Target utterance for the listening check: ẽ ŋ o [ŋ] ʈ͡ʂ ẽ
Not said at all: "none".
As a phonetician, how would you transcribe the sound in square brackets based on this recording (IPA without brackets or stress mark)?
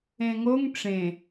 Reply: ŋ